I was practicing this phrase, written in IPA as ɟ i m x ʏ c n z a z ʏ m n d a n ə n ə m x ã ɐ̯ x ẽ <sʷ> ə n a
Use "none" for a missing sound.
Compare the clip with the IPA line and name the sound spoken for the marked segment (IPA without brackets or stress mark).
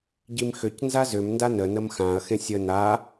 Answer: sʲ